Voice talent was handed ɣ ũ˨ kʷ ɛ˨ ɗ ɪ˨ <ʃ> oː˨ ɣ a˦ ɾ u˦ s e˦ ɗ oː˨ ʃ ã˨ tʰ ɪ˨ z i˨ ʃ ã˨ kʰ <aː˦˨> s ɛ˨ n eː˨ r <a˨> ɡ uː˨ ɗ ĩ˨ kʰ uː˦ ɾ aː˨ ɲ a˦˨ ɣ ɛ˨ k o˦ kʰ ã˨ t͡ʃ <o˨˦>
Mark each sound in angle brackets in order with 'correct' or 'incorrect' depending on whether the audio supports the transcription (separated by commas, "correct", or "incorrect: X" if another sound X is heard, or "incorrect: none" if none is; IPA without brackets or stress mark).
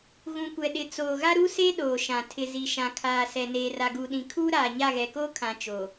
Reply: incorrect: t͡s, incorrect: aː˨, correct, incorrect: o˨